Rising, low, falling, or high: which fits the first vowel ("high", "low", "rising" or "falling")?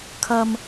low